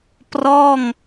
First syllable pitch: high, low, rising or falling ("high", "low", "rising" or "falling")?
falling